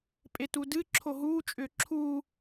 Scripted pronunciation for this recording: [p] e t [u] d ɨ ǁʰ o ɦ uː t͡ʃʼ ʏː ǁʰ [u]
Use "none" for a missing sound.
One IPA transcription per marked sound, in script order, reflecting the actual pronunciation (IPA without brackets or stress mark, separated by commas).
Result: pʼ, u, uː